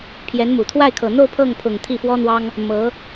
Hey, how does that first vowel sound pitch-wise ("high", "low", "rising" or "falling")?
rising